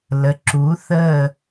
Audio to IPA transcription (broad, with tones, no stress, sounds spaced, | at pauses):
l ə˨ ǁ u˨˥ θ ə˥˧